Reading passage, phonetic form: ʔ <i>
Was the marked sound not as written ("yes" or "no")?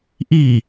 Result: no